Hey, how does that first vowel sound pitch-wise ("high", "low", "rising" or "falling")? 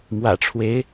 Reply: low